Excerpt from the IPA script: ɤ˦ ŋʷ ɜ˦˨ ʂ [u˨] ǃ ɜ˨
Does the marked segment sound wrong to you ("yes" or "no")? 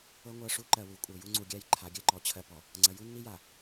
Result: yes